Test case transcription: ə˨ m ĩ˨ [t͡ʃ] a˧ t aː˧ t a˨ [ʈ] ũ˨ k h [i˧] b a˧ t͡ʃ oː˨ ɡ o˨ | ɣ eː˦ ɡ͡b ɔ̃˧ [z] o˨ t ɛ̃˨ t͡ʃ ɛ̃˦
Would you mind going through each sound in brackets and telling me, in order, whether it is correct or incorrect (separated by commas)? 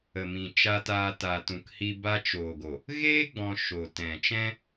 correct, incorrect, correct, incorrect